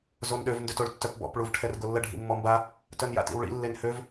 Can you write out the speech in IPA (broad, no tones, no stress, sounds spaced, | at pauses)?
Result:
z o n ɗ ø v n d ø t o ɭ tː œ p b ɔ̰ p ɭ u v ʈʰ ɛ r ɡ o lː ə ɖʱ ḭ mː ɔ m b a | t œ n j a̰ t ḭ w ɭ ḭ lː e n h ø v